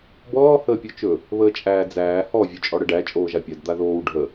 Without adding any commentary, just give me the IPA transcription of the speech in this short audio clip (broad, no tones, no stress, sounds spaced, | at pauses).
b ɔː h əː pʲ o t͡ʃ ɵ | β əː t͡ʃʼ æː d͡z æː h ɔ vʲ ɵ t͡ʃʼ ɔ ɽ ə ɖ æ t͡ʃʼ oː ʒ a pʲ a d d̪ a ð oː w ɖʱ ə